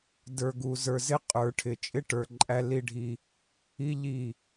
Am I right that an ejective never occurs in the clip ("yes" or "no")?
no